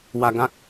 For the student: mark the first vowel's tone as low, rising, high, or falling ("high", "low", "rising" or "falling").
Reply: low